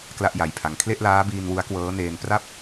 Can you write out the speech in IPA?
k l a˥˩ ʔ j a˧ j pʰ a˧ ŋ kʰ l e˥˩ ʔ l aː˦˥ b iː˧ n w u˦˥ a̯ k w ɤː˦˥ n eː˧ n p r a˥˩ p̚

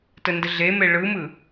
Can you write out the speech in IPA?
t ə n d ə ɮ e m e ɭ ɯ m ɯ

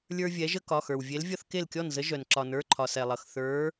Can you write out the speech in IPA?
lʲ ə˞˦ vʲ ɛ˨˥ ʒ ə˦ k ɒ˩˧˩ x ə˞˩ w vʲ e˨˥ l vʲ ʌ˦ θ k e˥˩ l kʲ ɔ˥˩ n z ə˨˥ ʒ œ˩ n ǁ ɒ˩ n ə˞˩˧˩ ǃʰ ɒ˩ s ɛ˩ lˠ ʌ˩ x θ ə˞˨˥

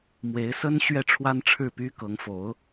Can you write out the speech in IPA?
m w e˧˥ ɪ̯ s ə˥ n ɕ ɥ ɛ˥˩ ʈ͡ʂʰ w a˥ n ʈ͡ʂʰ ɻ̩˥˩ p y˥ k ɤ˧˥ ŋ f o˧˥ ʊ̯

